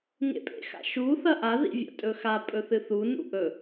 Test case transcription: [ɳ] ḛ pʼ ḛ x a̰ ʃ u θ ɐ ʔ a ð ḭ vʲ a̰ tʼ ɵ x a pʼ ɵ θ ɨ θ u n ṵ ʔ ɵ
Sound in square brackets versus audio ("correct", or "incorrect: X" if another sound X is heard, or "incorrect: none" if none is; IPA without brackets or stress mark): incorrect: ŋ